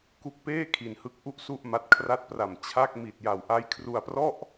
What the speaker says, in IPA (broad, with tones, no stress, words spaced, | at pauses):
ku˦˥k̚peː˥˩ kʰi˨˩nhɯ˦˥k̚ ʔu˥˩ʔsu˥˩ʔma˦˥t̚ kʰra˦˥t̚pra˨˩m t͡ɕʰa˥˩k̚ mi˨˩t̚ja˨˩wʔa˦˥j kʰru˧a̯prɔ˥˩ʔ